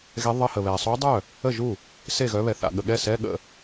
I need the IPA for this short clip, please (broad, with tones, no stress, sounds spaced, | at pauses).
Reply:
ɣ ɛ˧˥ ðˤ ə˧˥˧ h ə˨ β ɛ˨ sˤ u˧˥ dˤ œ˥˩ | ə˥˩ ʒ u˥˩ | s e˥˩ ɣ œ˧˥ β ɛ˨ θ a̰˨ ɠ ə˨ ɠ ɛ˥˩ s ɛ˧˥˧ ɠ ə̰˥˩